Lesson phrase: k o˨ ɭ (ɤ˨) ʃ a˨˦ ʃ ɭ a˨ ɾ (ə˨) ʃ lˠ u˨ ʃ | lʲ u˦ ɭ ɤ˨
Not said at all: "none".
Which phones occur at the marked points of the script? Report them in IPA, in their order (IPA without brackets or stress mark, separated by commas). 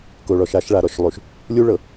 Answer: ɔ˨, ɔ˨